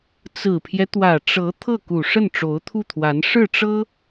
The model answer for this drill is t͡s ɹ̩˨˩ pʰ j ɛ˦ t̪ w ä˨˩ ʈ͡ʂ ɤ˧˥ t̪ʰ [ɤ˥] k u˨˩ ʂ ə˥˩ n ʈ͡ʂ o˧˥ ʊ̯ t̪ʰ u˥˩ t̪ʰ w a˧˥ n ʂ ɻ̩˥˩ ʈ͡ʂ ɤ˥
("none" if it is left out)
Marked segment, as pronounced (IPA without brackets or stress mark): ɤ˥˩